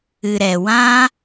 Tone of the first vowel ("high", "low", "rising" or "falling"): low